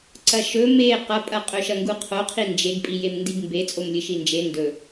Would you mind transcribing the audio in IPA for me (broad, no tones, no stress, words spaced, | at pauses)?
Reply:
ǀɐʃɵ me qɐpʼɐqʼɵʃɐ ŋɡuqʰo qʰind͡ʒeɡpʼijem ndiɡmbe t͡sʼomlʲɨʃind͡ʒe ndɵ